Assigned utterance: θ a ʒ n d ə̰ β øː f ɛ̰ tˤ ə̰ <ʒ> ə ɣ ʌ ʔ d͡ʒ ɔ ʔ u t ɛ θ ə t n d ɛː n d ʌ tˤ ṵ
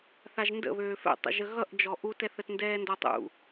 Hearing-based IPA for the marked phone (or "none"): ʒ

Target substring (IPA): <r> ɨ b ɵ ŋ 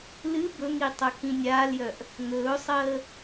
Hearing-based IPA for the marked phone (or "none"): l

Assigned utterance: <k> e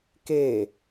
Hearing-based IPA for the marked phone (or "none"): k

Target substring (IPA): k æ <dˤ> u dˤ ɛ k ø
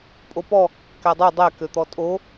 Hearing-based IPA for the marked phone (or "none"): dˤ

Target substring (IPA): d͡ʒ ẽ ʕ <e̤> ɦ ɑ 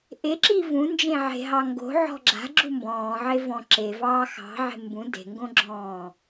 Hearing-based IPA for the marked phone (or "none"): e̤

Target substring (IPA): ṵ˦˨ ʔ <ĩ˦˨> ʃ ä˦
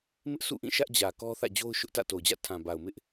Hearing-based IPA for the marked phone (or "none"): ĩ˦˨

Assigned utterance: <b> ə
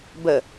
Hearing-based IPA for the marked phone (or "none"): b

